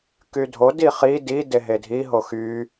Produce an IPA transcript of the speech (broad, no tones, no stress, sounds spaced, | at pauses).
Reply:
k y dʱ o d i χ i d i d e ɦ e dʱ i ɦ o x y